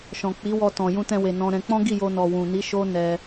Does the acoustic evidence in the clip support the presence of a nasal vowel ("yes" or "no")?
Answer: yes